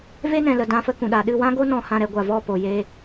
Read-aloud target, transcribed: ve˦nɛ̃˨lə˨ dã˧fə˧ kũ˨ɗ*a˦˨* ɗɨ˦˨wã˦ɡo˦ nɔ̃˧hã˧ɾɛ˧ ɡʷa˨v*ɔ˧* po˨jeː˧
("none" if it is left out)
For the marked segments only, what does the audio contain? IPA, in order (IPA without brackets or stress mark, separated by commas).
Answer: a˨, ɔ˦˨